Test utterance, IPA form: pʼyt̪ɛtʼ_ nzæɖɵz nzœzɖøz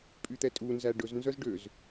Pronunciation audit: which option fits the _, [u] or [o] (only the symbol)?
u